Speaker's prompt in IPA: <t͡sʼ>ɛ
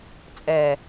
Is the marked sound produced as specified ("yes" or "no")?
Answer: yes